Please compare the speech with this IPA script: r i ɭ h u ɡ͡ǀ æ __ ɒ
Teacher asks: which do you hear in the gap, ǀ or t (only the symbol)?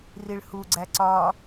ǀ